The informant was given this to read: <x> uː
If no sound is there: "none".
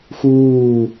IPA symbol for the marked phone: x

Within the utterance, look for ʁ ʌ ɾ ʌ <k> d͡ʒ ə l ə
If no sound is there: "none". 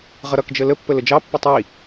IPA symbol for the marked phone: k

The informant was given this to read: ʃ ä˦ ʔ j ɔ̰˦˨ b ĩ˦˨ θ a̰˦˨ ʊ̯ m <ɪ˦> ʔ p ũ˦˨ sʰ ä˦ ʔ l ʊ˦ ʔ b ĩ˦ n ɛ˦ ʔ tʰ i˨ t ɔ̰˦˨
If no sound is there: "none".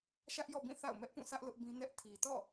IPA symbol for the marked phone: ɛ˦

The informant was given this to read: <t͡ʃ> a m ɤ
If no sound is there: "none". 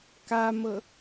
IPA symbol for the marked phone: k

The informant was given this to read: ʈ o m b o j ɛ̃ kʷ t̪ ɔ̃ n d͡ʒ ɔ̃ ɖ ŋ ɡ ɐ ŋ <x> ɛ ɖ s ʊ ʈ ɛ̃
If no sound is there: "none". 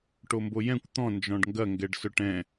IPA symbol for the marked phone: ɡ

